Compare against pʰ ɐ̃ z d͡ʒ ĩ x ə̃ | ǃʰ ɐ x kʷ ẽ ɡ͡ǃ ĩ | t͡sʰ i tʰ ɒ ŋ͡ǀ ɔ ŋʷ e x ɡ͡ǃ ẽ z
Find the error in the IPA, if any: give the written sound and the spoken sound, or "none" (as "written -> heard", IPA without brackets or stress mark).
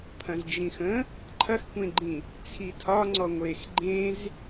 none